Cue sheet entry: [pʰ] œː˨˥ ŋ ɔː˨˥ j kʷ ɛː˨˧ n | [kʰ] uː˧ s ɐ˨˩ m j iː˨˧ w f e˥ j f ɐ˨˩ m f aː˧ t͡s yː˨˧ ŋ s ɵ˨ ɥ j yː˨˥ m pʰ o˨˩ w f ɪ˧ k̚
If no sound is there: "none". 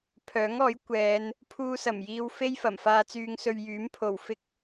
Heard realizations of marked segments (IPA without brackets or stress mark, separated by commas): pʰ, pʰ